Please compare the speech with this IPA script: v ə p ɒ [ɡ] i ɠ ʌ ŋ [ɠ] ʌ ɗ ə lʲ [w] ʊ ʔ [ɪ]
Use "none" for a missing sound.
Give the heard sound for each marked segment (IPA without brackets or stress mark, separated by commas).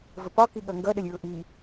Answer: k, ɡ, ɹ, i